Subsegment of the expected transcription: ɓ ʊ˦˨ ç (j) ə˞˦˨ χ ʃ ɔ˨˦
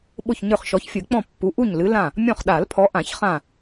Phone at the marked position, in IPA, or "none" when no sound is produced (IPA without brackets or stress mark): ɲ